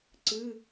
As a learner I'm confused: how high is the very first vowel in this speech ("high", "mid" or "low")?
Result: high